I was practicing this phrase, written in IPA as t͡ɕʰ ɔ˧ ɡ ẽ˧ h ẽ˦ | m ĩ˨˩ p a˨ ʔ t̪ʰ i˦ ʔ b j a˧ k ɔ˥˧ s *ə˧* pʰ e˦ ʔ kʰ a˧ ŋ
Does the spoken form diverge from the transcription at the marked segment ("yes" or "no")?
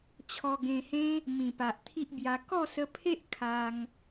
no